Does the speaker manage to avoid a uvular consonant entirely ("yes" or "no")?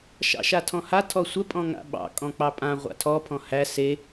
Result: no